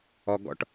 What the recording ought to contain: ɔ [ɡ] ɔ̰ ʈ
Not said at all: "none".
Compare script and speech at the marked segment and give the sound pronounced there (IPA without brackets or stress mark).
ɡ